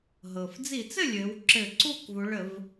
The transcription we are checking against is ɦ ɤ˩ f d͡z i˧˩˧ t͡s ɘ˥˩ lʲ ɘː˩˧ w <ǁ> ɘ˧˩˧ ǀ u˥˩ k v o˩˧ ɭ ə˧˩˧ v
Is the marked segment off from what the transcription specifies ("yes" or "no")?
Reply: no